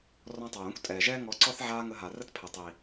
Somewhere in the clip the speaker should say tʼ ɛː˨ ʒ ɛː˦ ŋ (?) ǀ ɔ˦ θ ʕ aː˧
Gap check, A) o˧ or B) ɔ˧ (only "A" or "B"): B